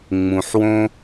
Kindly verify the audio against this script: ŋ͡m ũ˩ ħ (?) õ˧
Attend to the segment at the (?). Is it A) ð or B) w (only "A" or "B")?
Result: B